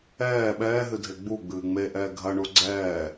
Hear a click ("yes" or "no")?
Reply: yes